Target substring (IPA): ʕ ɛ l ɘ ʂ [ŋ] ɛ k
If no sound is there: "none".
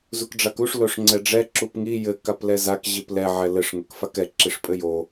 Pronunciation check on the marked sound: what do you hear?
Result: ŋ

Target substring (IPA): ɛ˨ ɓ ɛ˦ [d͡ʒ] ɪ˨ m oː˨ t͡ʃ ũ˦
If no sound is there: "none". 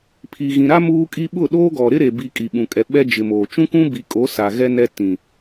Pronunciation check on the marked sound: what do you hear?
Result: d͡ʒ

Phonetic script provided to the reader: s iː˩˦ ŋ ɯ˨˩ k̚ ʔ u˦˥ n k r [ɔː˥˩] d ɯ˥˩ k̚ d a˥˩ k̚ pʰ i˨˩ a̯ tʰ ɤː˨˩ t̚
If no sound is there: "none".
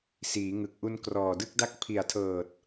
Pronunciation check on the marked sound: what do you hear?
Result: ɔː˨˩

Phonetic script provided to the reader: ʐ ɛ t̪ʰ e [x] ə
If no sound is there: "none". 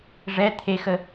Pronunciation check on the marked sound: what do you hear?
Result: x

